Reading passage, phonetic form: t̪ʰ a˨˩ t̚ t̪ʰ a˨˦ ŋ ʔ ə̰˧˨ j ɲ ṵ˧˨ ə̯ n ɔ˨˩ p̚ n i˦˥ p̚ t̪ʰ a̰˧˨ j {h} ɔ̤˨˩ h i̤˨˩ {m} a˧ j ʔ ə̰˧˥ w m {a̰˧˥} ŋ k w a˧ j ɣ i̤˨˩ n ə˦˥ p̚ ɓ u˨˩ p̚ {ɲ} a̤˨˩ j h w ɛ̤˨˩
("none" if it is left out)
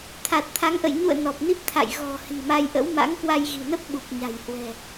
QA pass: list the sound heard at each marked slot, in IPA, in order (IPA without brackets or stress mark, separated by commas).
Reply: ɣ, m, a̰˧˥, ɲ